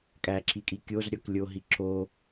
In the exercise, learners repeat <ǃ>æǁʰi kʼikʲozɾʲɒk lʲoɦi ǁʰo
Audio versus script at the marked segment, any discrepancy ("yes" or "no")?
yes